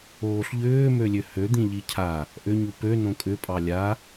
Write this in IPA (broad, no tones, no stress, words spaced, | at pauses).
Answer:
oːɬʎʏː mølʲøhø d̪ĩʎicʰa | ʔʏ ɲupø nõkʼʏ pʼɑlʲa